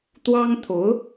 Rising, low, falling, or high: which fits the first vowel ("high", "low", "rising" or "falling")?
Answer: high